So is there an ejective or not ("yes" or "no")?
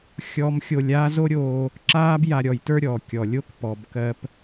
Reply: no